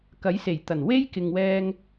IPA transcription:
kɐ˨˥jse˨˩jt̪ɐ˨˩nwe˥j kɪ˨ŋwɛː˧ŋ

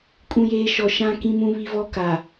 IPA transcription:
kʼũ˦˨jeː˦ ʃɔ˨ʃã˦kĩ˦mũ˦ βi˦vɔ˦ka˨

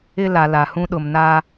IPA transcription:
ɪ˦la˨la˨ hũ˦ɗʊ˨mna˦

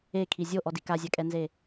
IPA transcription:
ekʰi zʲoʔɔdi kazʲakʼɛnze

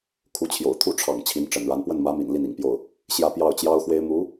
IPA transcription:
kʰu˧˥t͡ɕʰjo̰˨˩ʊ̯t̪ʰu˥˩ʈ͡ʂʰɑ̰˨˩ŋ t͡ɕʰi˧˥nʈ͡ʂə̰˨˩nɻa˧˥n pwə˥˩nmä˧˥mḭ˨˩n li˥˩nḭ˨˩ŋpjo˥˩ʊ̯ | ɕjä˥˧pjɑ˥˩ʊ̯t͡ɕjɑ˥ʊ̯xwe˥ɪ̯ mu˧˥

